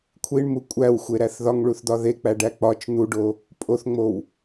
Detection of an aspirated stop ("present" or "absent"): present